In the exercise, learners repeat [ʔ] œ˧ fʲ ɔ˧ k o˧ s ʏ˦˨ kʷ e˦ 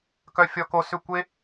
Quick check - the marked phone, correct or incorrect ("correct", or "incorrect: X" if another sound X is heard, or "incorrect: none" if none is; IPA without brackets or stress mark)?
incorrect: k